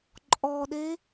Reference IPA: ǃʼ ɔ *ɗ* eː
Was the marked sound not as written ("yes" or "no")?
no